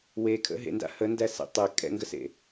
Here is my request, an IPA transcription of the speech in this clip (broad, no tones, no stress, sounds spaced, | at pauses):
w e kʰ ə̰ ɦ ḛ n d a̰ h ə n d æ s ḛ tˤ e kʼ ɛ̰ ŋ ɡ ə s ḛ